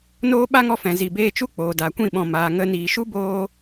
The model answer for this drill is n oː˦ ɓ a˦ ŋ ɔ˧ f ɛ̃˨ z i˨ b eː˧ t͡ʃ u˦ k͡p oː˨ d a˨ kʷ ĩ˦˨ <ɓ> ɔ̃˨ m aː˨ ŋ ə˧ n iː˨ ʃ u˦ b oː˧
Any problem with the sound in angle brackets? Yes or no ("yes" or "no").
no